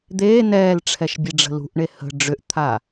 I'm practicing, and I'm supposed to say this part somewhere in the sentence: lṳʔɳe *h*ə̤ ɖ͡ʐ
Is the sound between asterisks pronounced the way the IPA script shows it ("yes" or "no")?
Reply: yes